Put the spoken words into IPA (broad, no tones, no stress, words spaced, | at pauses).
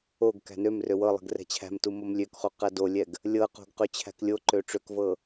oɡ kæ̤nømrø wɤlˠɛ̤ɡ rɛ̤t͡ɕʰæ̤mtu momlʲøkχo qædolʲɛɡ | lʲɤqo̤ɡ qøt͡ɕʰæ̤klʲoǃø ʈ͡ʂøkvɤ